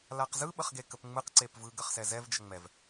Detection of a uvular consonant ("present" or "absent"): present